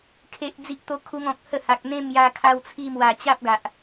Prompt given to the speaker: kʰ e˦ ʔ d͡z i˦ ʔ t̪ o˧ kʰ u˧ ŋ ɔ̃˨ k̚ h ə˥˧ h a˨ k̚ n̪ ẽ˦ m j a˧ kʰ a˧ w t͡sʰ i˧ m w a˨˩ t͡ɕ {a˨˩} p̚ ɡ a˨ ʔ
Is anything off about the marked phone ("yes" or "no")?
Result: yes